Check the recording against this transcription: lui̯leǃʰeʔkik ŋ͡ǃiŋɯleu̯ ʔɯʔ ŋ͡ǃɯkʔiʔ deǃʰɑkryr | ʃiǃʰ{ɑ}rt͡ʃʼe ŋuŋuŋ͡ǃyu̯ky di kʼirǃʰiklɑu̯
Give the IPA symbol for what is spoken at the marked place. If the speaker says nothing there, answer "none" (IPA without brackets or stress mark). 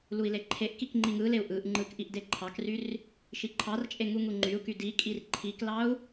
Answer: ɑ